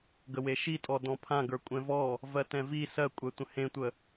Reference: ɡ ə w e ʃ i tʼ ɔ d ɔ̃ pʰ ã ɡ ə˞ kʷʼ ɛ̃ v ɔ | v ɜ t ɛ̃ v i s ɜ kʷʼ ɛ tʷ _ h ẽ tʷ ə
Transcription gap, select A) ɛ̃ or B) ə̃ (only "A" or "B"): B